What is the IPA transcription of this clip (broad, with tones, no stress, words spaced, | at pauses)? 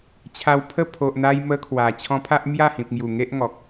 t͡ɕʰa˧wpʰə˥˧ pʰo˨ʔn̪a˧j mə˦kʰwa˨˩ t͡ɕʰɔ̃˧pʰa˦ʔ mja˥˧hĩ˨p̚ŋju˨˩ ŋe˦ʔŋɔ˨k̚